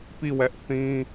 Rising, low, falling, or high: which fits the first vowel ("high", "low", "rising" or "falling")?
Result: falling